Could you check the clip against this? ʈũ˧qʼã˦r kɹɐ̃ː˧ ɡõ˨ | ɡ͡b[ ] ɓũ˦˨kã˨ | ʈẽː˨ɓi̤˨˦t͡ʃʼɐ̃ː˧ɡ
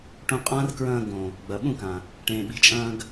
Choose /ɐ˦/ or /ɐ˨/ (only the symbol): ɐ˨